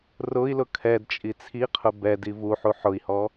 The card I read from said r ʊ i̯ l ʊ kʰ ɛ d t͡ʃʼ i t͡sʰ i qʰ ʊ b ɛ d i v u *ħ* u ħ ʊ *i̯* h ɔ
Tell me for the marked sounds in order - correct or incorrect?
correct, correct

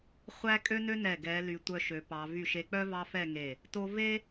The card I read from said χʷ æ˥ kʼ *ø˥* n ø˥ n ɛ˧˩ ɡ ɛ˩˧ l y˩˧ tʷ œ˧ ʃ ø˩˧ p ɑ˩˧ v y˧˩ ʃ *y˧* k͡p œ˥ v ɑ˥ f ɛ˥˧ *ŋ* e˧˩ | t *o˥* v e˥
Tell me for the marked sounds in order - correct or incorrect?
correct, incorrect, correct, correct

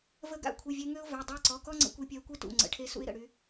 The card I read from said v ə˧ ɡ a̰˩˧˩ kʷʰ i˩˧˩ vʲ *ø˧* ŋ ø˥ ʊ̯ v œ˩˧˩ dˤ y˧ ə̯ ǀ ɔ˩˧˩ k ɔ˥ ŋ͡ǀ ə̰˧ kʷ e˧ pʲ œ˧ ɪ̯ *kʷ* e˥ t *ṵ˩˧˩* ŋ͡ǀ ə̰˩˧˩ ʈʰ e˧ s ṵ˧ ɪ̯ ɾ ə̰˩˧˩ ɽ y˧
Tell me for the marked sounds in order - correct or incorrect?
incorrect, correct, correct

